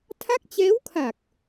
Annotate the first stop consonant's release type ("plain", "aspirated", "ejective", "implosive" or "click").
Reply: aspirated